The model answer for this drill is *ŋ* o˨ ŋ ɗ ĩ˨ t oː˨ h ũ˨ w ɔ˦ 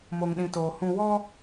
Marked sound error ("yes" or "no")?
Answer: yes